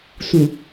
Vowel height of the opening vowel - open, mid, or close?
close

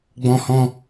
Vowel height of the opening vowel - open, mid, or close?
mid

